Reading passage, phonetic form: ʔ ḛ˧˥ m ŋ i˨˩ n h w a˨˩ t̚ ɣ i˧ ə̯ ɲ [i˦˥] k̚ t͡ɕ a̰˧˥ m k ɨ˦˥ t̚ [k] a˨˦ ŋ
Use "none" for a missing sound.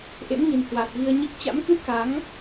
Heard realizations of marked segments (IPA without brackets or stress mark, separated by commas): i˦˥, k